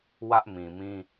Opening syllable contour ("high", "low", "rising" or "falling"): high